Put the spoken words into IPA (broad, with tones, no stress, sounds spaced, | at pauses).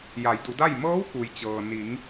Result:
j a˩˧ j d u˩˧ d a˥˨ j m ɤː˧˥ w k u˩ j t͡ɕ ɤː˩ n i˩˧ ŋ